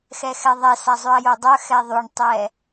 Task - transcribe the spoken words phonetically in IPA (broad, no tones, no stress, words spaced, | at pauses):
xɛxɛðˤɛ sazˤʉɐ̯jodˤœ xɛðˤyɳtˤɛ